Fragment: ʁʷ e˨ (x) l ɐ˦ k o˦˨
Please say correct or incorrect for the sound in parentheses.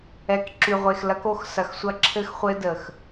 correct